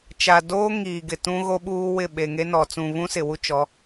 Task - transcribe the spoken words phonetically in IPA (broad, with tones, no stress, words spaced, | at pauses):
t͡ʃa˨doː˦ŋiː˨ɡɪ˨ tũ˦ɣo˦ɓuː˦wɪ˦˨ ɓe˨ŋe˦nɔ˨ t͡sũ˨βũ˦sɪ˨ wu˦t͡ʃɔ˨˦